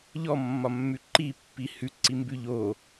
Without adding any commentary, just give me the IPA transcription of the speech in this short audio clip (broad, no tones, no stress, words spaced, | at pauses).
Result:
ʎɔmːɒmːʉ ǃipːi hʉǀimbʉ ʎo